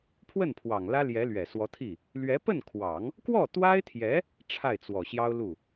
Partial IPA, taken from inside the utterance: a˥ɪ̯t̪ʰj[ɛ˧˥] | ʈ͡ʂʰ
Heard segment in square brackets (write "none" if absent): ɛ˧˥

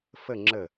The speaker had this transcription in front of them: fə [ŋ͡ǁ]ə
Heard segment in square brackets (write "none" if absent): ŋ͡ǁ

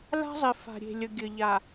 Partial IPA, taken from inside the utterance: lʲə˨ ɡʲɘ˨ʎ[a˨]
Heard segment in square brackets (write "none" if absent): a˨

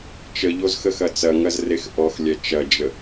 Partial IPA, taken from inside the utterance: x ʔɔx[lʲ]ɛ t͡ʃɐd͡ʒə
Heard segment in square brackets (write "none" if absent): lʲ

